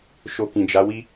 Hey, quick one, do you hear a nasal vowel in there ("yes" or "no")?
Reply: yes